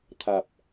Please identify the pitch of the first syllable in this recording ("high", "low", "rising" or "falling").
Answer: low